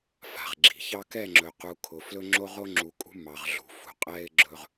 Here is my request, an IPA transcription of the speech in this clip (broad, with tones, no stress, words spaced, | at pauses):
fa̤˨ʁɡ͡ǁi̤˨çɑ˦ kɛ˦˨ŋ͡ǁɵ˨qu˨ kʰʊ˨ flɵ˦ŋ͡ǁo˦ʁo˦ ŋ͡ǁu˨kʼṳ˦ mɑ˨ʁ ɮṳ˨fṳ˨qʼɛ˦ɪ̯ɡ͡ǁɵ˦ʁ